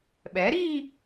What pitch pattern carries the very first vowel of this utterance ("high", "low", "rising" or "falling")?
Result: rising